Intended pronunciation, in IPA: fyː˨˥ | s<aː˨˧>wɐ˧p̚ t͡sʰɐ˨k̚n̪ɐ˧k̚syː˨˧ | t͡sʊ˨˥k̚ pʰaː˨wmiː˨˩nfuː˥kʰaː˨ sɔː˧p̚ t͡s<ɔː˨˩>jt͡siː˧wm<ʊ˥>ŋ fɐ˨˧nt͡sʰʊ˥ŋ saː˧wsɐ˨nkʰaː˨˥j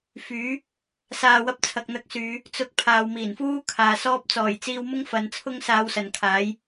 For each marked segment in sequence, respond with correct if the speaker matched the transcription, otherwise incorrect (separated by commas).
incorrect, correct, correct